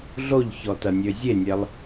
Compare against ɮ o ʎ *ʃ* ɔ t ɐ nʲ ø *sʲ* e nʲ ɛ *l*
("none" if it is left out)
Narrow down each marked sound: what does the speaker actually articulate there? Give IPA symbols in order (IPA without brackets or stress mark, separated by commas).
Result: ç, zʲ, lˠ